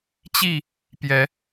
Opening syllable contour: falling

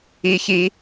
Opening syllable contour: high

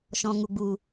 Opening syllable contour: low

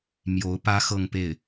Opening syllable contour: rising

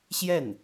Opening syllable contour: falling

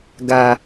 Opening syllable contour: low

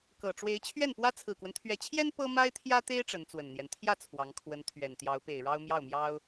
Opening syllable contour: low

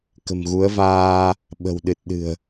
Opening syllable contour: low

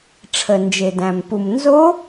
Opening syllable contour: low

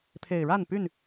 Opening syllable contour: low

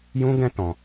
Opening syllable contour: high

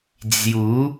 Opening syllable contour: rising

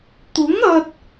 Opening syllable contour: rising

